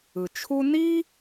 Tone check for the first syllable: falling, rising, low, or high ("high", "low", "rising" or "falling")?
low